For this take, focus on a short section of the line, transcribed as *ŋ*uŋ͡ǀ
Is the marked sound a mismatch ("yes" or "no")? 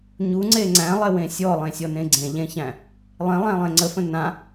yes